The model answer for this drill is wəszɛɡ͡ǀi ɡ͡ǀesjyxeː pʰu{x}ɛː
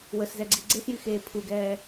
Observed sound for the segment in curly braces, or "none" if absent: ɡ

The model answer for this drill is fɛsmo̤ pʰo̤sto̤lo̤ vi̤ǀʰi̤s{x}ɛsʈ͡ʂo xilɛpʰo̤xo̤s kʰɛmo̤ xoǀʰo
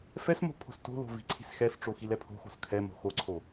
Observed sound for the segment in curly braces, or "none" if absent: x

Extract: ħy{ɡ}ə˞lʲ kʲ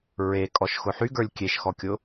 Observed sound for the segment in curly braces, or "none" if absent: ɡ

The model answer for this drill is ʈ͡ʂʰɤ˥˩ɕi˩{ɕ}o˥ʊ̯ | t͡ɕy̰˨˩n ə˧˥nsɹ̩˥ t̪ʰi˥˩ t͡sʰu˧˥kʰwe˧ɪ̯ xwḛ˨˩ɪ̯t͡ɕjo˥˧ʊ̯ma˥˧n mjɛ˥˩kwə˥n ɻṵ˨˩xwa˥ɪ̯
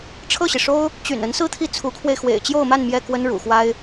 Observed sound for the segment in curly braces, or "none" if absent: ʂ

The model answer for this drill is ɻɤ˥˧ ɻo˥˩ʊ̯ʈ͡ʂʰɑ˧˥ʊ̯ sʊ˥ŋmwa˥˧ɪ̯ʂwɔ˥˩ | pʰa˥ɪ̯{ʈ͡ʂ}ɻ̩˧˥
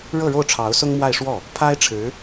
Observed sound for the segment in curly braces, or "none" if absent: ʈ͡ʂʰ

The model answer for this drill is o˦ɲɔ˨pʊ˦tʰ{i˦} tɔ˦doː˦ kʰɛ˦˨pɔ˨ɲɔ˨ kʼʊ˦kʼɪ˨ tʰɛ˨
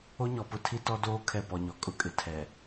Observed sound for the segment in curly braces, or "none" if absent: i˦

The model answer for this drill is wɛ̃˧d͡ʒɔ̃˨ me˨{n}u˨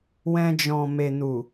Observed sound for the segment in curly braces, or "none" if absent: n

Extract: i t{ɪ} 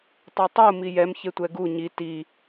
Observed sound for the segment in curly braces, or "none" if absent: i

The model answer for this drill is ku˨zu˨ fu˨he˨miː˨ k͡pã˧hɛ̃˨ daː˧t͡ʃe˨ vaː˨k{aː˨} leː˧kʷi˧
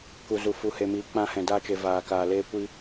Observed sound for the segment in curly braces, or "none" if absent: aː˨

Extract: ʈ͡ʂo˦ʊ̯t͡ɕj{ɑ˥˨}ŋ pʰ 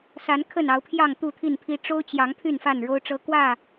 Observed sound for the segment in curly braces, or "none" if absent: ɑ˨˦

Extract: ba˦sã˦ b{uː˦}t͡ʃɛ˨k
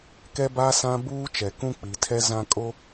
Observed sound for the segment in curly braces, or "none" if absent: uː˦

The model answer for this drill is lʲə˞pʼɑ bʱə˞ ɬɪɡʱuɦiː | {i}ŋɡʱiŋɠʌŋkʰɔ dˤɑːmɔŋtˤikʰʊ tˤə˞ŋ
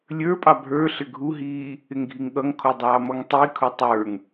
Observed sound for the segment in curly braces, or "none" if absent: ɪ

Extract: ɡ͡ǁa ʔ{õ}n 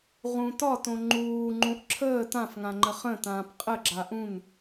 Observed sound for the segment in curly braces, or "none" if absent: ũ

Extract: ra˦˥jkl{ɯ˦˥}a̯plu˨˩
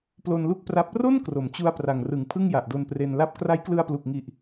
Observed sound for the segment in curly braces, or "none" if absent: ɯ˧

